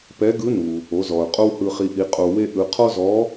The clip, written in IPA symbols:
pɛ˧˥ɡɯ˧˥nu˩ | o˩˧zɔ˩ʊ̯ qʼo˥whɯ˧χi˧ʔi˧ qʼo˧we˥ʔɯ˧ qʰɔ˥zɔ˧˥

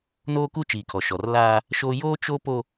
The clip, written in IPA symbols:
noː˦ku˦ t͡ʃiː˨kʰɔ˨ʃɔ˨r laː˦ | ʃo˦ joː˦t͡ʃo˦ po˦

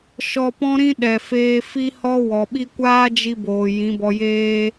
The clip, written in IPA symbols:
ʃɔ˧pɔ̃˦ɾĩ˦ ɗɛ˨feː˧fi˦ hɔ˦ wɔ˨ɓi˦ kʷaː˦d͡ʒi˧boː˨ jĩ˨˦bɔ˧jeː˦

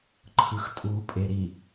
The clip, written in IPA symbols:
ǃʰɯxtʼuːpʼeɾi

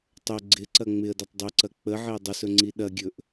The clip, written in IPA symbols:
tˤɵ ɡ͡ǀɪǀɐ ŋ͡mɪə̯dɐtˤ dˤɵǀɐ k͡pəʕɪə̯ dˤʊsɵŋ͡ǀi ɗɐɡʲɵʔ

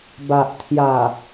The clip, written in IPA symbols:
ba˨ʔt̪ʰja˨˩

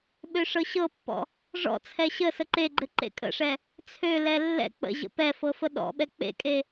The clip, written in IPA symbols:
ɓøʂɤɕɤpːɔ̰ | ʐɔ̰t͡sʰɛ ɕə səǃeɡ͡ǃɘ ǃḛkʼə̰ʂɛ | t͡sʰølɛ lːɛ̰ k͡pə̰ ʑə̰pɛfɤ fəɗɔ̰ɓɛ k͡pḛkʼe

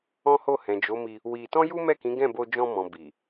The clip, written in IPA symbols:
ɔ̃˦ho˦˨ hɛ̃˨d͡ʒo˨˦mi˧ | wi˧ tɔ̃˦ju˦mɛ˦˨kĩ˨˦ ɡɛ̃˦˨bo˧ d͡ʒɔ̃˧mɔ̃˨ bi˨

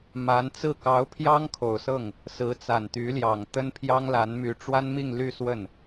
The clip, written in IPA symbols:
ma˧˥nt͡sɹ̩˥˩ kɑ˧˥ʊ̯pʰjɑ˥ŋ kʰo˨˩ʊ̯sɤ˥˩ŋ | sɹ̩˧˥t͡sa˨˩nt̪y˧˥ljɑ˨˩ŋ t̪ə˥npʰjɑ˥ŋla˧˥nmy˧˥ ʈ͡ʂwa˥nmi˥˧ŋ ly˥˧swə˥˩n

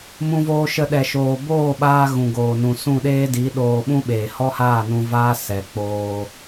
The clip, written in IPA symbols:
mũ˧voː˧ʃə˧ɗɛ˨ ʃoː˨boː˦˨ɓaː˧ ɣũ˨ɡoː˨ nũ˨sũ˦˨ɗeː˦ di˨˦ɗoː˧ ɓũ˦ɓeː˨ hɔ˦haː˦˨nũ˧ vaː˦ sɛ˨k͡poː˧

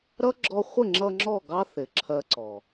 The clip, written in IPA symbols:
ɾʌ˦ ɡ͡ǁɔ˧χʷɪ˦˨ŋ͡ǁʌ˧ ŋ͡ǁɔ˦˨ɡɑ˦ θɪ˨ǁʰɜ˧ǀɔ˨

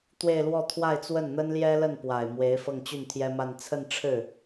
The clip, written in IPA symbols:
t̪we˥˧ɪ̯lwɔ˥˧ t̪ʰwa˥˧ɪ̯t͡swə˥˩n n̪ə˥nljɛ˥lə˥˩n pwa˨˩ɪ̯ mwe˧˥ɪ̯ fɤ˥˧ŋt͡ɕy˥˩nt̪ʰjɛ˥ma˥˧n t͡sʰə˥˧nʈ͡ʂʰɻ̩˥˩

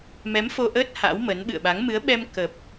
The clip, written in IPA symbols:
mɛ˨˦mfo˧ʔəː˦˥t̚ ha̰˧˥wmə˨˦n ɓɨ̰˧˨ə̯ɓa˨˦ŋ mɨ˨˦ə̯ɓɛ˧m kə˨˩p̚

